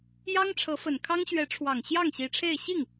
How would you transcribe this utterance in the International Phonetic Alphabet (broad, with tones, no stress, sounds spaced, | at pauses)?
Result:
j ɑ˥ ŋ ʈ͡ʂʰ ɤ˧˥ f ə˨˩ n kʰ ɑ˥ ŋ ɕ ɥ ɛ˧˥ ʈ͡ʂʰ w ɑ˨˩ ŋ ɕ j ɑ˥˩ ŋ ɕ i˧˥ ʈ͡ʂʰ e˥˧ ɪ̯ ɕ i˥˩ ŋ